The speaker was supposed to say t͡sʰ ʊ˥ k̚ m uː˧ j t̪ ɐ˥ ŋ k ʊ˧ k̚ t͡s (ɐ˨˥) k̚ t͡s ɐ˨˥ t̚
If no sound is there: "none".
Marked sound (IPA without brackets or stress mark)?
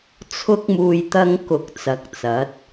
ɐ˨˥